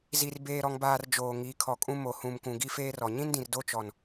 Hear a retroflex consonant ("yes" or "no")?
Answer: no